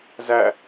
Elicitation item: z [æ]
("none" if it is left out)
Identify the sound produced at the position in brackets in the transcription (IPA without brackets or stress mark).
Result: æ